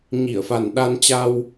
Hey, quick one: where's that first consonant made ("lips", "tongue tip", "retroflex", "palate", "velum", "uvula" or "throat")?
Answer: palate